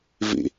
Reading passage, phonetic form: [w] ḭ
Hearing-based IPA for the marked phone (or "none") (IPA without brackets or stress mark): v